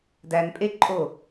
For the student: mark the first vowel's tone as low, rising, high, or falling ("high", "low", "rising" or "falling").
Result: low